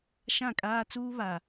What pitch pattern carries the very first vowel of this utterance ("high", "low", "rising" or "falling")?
falling